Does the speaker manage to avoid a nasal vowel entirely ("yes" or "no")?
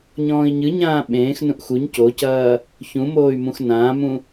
no